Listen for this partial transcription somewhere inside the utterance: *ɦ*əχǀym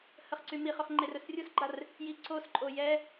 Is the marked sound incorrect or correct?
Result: incorrect